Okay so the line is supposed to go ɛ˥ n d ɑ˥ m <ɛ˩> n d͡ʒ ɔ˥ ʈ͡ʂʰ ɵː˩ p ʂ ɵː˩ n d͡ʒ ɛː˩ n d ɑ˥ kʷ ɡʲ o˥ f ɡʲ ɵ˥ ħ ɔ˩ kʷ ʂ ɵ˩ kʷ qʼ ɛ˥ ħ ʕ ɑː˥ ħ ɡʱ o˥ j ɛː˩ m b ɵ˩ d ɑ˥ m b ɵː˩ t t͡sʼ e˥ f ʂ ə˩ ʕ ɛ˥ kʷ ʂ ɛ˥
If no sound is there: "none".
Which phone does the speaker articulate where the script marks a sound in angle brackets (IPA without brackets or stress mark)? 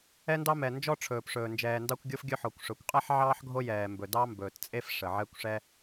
ɛ˩